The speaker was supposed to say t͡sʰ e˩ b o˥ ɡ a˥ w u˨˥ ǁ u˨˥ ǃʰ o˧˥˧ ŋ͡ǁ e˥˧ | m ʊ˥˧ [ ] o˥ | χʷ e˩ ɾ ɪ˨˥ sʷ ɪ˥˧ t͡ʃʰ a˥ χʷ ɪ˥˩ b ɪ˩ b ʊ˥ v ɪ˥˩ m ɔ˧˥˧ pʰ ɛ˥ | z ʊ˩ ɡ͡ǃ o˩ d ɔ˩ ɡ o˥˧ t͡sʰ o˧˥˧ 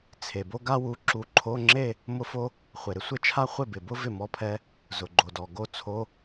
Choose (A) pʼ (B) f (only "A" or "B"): B